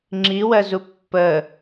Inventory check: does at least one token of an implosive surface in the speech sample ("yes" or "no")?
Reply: no